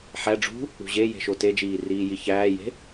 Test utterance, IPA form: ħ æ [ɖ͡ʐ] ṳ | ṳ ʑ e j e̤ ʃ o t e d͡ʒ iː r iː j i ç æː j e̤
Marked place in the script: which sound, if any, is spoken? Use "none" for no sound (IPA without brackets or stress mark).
ɖ͡ʐ